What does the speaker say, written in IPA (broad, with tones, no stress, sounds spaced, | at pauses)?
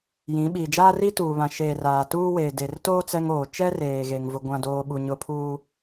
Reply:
j ĩ˨˦ ɓ iː˨ d͡ʒ aː˦ r i˦ t uː˨ β ã˨ ʃ eː˨ r aː˨ t uː˦ w eː˨ d e˨ r t oː˦ t͡s ɛ˦ ŋ oː˨ t͡ʃ ɛ˦ r eː˨ ɣ e˦ ŋ v ʊ˦ ɡʷ ã˦ d oː˦ ɓ u˨ ɲ ʊ˨ pʰ uː˨